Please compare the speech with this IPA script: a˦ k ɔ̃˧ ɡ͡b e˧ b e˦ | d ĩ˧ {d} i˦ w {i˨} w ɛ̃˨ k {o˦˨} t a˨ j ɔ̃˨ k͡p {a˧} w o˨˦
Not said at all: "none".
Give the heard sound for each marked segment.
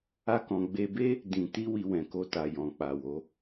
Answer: t, i˧, o˧, a˨

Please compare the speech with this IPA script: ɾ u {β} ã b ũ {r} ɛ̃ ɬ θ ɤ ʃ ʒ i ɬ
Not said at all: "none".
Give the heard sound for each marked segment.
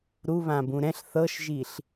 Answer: β, ɾ

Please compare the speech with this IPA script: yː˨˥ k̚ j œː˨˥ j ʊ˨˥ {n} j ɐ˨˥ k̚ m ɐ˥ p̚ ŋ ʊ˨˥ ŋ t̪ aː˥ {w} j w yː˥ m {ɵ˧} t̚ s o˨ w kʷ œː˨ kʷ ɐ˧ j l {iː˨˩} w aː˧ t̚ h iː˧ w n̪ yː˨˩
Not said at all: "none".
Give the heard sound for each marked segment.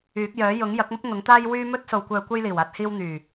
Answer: ŋ, none, ɵ˥, iː˨˩

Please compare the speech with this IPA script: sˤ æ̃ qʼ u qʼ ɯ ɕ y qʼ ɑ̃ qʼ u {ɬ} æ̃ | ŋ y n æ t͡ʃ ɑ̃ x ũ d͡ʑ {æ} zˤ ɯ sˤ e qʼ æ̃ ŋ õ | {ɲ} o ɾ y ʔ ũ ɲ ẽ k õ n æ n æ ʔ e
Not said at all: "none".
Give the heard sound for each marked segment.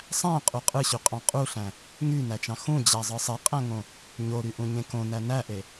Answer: ɬ, æ, ɲ

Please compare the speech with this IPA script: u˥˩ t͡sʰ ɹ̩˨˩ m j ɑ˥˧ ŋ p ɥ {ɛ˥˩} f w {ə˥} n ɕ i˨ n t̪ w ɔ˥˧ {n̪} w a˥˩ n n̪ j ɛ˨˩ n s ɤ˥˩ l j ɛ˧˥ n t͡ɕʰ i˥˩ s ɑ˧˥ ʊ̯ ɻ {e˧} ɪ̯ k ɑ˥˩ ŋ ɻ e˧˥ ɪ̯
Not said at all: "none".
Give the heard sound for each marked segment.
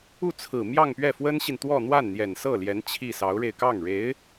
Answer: ɛ˥˩, ə˥, n̪, e˧

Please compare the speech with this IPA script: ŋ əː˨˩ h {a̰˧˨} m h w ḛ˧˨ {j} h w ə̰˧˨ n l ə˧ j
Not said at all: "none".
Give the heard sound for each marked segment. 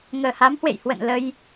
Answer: a˨˦, j

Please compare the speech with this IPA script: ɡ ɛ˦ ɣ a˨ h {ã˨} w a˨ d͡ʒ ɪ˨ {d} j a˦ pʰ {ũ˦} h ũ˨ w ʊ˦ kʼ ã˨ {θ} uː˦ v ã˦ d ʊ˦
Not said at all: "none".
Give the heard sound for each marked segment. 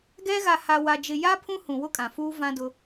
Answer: a˨, none, ũ˦, f

